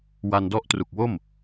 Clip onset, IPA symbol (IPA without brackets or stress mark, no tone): w